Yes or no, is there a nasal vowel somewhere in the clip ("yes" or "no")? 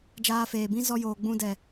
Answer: yes